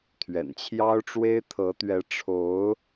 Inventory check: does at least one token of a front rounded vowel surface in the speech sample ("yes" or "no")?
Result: no